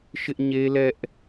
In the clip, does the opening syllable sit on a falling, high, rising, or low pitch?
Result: high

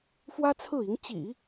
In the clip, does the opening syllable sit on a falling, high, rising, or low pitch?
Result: high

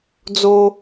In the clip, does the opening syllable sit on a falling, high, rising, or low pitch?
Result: high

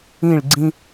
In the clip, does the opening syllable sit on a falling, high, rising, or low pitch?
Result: falling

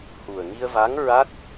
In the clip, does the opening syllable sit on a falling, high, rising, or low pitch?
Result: low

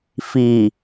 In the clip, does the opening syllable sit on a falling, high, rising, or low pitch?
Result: low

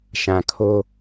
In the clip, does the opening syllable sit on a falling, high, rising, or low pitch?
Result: low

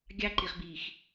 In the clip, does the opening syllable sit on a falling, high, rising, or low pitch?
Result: high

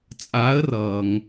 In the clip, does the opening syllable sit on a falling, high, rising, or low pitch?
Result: rising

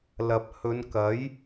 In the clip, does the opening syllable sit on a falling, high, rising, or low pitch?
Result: low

